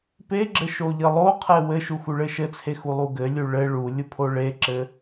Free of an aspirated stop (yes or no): no